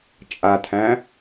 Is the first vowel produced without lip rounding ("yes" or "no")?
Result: yes